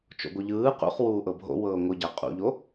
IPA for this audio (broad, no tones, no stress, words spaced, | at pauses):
t͡ʃo̰ɡʷɯʎɯː qṵχ wuːʔɤbʱo̰ wɤːŋʷɯɟa qʼṵʎo